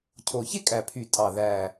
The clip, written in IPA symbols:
cʰo˨˩çe˥kʼæ˨˩pʰy˨˩ tʼɑ˨˩ðæ˨˩

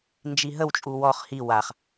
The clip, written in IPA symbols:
nd͡ʒiɦəwt͡ʃʼu wɔχ hi waχ

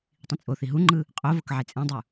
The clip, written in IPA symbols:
tˤĩt͡sʼoθi ɦuŋ͡ǃɯ | qʼovok ʕet͡sʼɛ̃dˤu

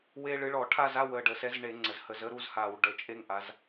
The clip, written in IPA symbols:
we˦ɭɨ˨˥ ɭɔ˧˩˧ʈʰa˥˨za˥˨w ə˨˩ɖə˨˩sɛ˨˥zɳe˧˩˧ ŋ͡ǀə˩˧zhə˧˩˧z ə˥˨ɾu˥˨zha˧˩˧w ɖə˧˩˧t͡ʃʼe˦ŋʔa˩˧z

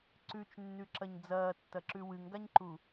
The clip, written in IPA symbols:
ǀʉt͡ʃnːʉǁɐɲ d͡zɐːtːɐǁʉ wɨŋɡaɲǃu

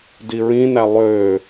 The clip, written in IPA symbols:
diɹĩnæ lˠø

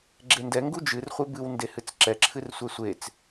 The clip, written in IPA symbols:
ɡ͡ǁendɛ ŋɡud͡ʒɨrχʷe bɨw ndehɨt͡sǁɛǁʰɨr sʷɛsʷet͡s

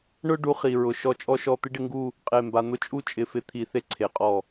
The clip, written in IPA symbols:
ɳʊ˥˧ ɖu˥χi˧ɹʊ˧ ʃɔ˥˧t͡ʃʼɔ˥ʃɔ˥˧ t̪ɪ˥ɖɪ˥˧ŋɡu˥˧ | qʼe˧˩mba˧ n̪ʊ˥t͡ʃʼu˥ t͡ʃʼɪ˧fɪ˥˧t̪ʰi˧ θe˥ǀʰe˩˧qʼɔ˧˩

